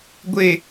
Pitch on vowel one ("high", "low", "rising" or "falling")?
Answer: low